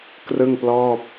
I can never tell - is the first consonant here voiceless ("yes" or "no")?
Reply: yes